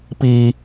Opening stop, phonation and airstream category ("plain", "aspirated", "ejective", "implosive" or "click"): plain